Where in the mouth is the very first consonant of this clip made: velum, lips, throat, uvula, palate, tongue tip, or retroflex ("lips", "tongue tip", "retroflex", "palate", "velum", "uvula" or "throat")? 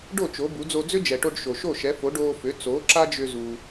retroflex